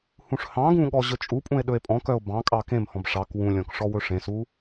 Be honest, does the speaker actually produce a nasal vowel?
yes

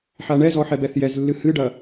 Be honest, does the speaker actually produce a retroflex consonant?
yes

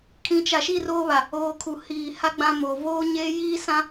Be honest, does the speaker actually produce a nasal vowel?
yes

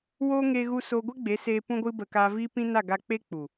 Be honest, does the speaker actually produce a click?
no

